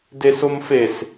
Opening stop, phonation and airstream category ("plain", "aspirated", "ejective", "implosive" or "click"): plain